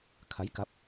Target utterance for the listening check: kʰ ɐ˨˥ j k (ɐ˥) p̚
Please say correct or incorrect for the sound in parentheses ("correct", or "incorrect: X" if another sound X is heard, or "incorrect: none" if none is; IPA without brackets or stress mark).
incorrect: ɐ˨˥